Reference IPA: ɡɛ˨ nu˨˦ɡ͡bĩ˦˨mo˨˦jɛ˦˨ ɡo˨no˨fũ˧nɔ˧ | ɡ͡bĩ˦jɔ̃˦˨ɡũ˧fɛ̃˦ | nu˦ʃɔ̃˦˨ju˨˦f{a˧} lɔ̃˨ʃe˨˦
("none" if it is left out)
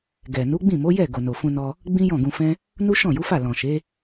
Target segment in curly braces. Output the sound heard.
a˦˨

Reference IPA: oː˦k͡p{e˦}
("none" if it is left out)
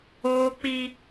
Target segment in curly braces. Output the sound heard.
i˦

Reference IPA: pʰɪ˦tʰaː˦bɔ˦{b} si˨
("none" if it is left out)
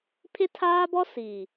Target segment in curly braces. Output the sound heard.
none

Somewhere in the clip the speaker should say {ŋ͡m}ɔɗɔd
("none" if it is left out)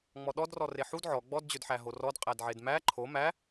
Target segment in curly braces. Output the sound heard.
ŋ͡m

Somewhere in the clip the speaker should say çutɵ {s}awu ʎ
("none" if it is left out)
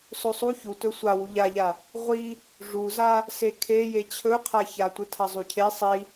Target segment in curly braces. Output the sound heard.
sʷ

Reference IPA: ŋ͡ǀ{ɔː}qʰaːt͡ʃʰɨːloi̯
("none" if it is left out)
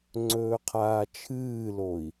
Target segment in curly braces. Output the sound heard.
ɵː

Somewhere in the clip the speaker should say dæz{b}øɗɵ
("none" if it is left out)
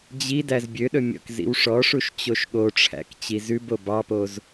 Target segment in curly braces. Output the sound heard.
bʲ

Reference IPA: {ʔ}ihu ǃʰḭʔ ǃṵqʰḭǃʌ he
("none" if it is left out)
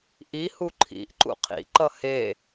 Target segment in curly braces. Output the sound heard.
ʔ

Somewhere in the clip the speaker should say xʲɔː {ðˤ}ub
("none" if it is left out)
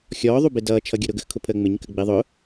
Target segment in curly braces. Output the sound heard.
ðˤ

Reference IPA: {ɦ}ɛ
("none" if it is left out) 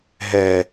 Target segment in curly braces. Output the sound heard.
ɦ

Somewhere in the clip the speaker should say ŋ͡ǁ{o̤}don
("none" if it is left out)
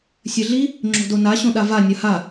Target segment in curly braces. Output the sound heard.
o̤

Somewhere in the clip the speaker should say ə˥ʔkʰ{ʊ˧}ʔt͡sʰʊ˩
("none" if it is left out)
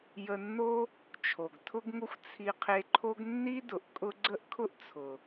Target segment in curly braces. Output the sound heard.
ʊ˥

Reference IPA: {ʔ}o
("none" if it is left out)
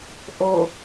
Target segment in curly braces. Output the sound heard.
ʔ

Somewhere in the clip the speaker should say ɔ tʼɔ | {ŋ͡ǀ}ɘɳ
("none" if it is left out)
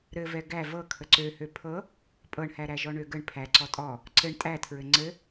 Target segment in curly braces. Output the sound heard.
ǀ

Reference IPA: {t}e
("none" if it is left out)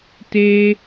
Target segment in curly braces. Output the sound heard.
t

